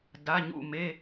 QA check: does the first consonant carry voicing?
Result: yes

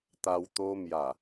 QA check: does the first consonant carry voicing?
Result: no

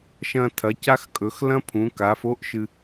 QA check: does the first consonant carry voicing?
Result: no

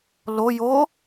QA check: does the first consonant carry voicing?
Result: yes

